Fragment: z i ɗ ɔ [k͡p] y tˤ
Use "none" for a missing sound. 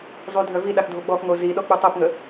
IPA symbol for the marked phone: k͡p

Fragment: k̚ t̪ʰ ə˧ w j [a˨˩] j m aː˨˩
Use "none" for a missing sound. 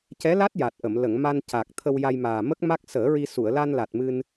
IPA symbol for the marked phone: a˧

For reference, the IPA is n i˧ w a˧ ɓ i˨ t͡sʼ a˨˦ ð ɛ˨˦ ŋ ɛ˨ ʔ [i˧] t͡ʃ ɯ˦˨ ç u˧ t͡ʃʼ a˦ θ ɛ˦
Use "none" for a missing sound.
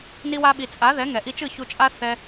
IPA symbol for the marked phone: i˧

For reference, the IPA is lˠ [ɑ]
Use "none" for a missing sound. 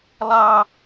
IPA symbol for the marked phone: ɑ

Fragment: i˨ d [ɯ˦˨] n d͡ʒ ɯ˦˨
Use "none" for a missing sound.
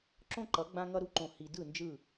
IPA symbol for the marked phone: ɯ˦˨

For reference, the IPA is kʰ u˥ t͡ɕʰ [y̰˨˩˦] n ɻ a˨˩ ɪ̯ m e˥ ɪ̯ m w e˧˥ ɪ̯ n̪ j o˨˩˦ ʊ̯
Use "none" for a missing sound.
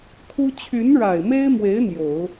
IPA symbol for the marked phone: y˧˥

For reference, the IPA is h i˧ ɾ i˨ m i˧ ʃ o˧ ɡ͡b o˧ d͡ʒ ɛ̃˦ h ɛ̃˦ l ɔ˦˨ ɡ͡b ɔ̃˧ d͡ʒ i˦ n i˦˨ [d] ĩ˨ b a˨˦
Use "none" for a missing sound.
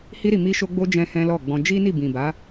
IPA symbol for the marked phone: b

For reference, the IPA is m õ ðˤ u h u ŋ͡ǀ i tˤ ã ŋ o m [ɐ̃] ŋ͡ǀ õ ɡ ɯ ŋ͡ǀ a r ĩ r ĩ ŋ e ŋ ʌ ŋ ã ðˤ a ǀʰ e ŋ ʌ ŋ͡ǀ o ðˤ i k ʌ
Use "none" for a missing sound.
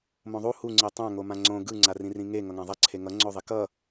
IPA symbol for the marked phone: ã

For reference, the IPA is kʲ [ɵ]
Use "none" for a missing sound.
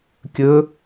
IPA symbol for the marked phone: ɵ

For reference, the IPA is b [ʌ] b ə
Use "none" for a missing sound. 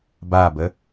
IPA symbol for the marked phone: a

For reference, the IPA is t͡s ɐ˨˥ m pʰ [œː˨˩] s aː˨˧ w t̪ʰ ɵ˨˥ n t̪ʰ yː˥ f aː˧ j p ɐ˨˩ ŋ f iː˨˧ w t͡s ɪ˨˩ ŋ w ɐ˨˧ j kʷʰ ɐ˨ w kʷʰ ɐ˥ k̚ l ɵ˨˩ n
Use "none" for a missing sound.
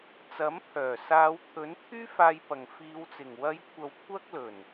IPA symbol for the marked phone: œː˨˩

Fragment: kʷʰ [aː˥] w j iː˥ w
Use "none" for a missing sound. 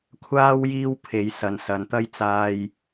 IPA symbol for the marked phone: aː˥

